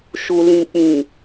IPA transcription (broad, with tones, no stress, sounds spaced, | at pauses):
ʃ u˨ l ĩ˨ k͡p ĩ˨